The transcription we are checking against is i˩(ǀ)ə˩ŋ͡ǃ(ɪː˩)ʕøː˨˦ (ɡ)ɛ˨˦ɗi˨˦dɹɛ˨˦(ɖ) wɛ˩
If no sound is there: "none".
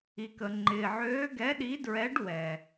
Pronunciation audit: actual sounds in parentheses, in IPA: k, ɪː˩, ɡ, ɖ

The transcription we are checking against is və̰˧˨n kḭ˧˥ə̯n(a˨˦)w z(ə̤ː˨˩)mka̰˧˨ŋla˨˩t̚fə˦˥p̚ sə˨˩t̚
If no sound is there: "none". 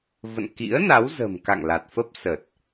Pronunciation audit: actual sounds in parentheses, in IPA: a˨˦, ə̤ː˨˩

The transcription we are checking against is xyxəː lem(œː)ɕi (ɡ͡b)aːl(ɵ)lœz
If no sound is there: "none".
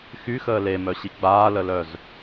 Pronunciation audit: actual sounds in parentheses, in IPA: œ, ɡ͡b, ə

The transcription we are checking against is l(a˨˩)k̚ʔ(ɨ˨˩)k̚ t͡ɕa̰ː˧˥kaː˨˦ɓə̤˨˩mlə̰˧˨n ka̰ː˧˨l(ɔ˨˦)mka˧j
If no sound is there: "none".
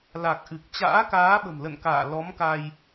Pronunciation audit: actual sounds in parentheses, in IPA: a˨˩, ɨ˨˩, ɔ˨˦

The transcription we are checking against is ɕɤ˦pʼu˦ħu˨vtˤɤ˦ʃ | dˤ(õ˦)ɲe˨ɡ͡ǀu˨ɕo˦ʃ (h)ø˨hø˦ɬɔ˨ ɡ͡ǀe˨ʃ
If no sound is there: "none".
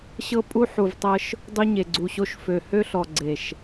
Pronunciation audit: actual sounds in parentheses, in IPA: o˦, f

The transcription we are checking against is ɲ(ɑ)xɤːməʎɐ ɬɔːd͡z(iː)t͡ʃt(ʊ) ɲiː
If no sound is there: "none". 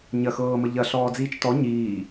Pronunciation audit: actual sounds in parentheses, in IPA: ɐ, iː, ɔ

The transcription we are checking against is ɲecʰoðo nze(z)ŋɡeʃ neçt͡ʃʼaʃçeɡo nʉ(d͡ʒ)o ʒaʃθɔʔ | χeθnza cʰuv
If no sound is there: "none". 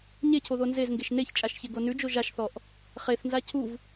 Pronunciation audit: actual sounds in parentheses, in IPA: z, d͡ʒ

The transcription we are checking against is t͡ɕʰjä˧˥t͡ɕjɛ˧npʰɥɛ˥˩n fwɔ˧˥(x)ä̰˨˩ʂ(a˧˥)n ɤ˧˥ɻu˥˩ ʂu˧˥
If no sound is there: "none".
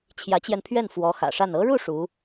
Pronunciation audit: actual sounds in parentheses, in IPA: x, a˥˩

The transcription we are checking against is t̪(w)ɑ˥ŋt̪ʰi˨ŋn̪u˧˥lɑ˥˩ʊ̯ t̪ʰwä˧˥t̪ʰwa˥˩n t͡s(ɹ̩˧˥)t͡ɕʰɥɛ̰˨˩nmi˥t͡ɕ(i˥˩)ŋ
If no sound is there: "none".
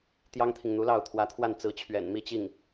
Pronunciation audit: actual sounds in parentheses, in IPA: j, ɹ̩˧˥, i˥˩

